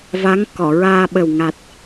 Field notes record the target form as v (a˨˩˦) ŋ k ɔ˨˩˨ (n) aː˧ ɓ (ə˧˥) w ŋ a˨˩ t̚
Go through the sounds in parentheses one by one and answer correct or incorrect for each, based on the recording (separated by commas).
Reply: incorrect, incorrect, incorrect